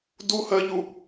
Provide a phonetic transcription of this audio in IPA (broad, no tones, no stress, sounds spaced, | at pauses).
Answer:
d u h ɜ ʎ u